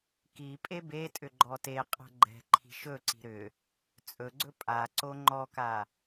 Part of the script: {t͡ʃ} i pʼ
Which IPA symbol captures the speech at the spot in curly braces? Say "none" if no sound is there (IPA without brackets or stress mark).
k